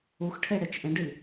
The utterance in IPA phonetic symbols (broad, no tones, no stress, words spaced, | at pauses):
uxʈʰe ɽet͡ʃʔẽɖi